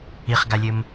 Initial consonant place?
uvular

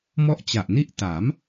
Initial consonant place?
labial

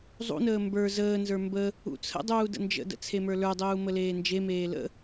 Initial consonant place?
alveolar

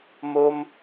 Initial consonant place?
labial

